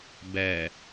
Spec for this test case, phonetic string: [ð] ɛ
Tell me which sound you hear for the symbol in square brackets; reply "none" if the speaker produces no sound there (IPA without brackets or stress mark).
b